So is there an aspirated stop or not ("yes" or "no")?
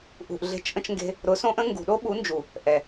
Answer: no